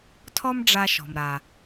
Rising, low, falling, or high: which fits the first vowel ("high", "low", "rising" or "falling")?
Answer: high